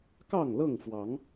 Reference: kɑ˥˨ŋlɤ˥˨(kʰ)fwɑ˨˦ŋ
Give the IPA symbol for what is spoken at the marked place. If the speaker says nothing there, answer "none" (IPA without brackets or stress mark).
ŋ